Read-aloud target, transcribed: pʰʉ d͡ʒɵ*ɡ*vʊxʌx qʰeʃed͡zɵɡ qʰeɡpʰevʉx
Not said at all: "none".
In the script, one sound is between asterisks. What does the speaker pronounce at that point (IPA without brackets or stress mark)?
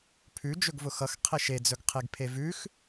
ɡ